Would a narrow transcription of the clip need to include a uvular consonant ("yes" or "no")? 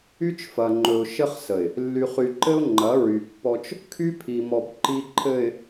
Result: yes